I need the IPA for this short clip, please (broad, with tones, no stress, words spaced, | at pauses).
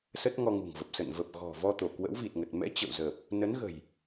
sə˦˥t̚ŋɔ˧ŋṳ˨˩ŋvə˨˩p̚ sə̰˧˨n və˨˩p̚ɣɔ̤˨˩ vɔ˧t̪o˧˩ kwə̰˧˥wvi˨˩t̚ŋə˨˩t̚ mɛ̰˧˥ t͡ɕə̰˧˨wzə˨˩p̚ | nə˨˦nɣə̤˨˩j